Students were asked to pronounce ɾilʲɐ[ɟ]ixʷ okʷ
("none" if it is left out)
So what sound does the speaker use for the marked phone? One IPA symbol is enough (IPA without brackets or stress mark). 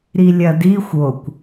d